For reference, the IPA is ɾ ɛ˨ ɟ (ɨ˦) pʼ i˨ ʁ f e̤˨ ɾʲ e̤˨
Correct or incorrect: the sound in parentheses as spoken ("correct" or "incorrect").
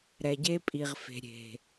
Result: incorrect